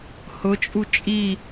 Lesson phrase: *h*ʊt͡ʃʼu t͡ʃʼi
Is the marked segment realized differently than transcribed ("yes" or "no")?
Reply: no